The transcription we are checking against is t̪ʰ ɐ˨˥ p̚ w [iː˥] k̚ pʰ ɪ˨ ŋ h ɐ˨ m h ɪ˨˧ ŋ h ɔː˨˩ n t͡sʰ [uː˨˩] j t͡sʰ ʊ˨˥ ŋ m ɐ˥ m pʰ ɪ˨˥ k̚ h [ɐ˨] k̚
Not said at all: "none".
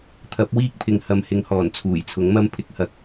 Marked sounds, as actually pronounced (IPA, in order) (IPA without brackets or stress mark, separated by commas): iː˥, uː˨˩, ɐ˨